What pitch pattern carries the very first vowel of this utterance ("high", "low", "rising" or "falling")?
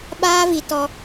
high